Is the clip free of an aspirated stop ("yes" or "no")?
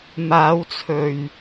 no